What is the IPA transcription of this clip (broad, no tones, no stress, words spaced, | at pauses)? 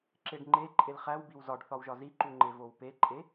ǁeɖŋ͡ǃe ǃʼelχæwbiw zɒɖθɒwʒɒ ziǃuŋ͡ǃe vowpeǃʼe